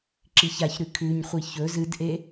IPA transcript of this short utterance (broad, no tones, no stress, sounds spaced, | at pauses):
ǁ i ç a ç ɾ ʉ kʰ ʉ ɲ χʷ i ç ɵ z ɨ d ʔ e